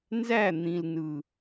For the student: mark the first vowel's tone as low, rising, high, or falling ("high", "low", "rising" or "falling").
falling